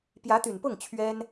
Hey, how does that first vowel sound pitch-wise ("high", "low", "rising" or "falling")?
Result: rising